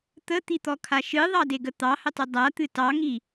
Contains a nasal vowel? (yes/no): no